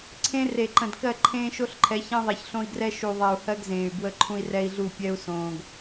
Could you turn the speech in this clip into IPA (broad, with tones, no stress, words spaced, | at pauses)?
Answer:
ǀʰẽ˦ re˨ǃə̃˨d kɜ˦˨ǃʰẽː˦ʃo˦ɬ ǃʰɛ˨˦çɛ̃˦ ðˤe˨çɬõ˦i̯ɡrɛ˦ ʃu˨ðˤe˨u̯ hɜ˦ɡzẽː˨y̯ bwə˦ǃʰũ˦i̯rɛ˦i̯ɮu˦˨ pʲɛ˦u̯sõː˨ɡ